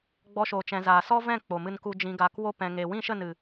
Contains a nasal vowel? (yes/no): yes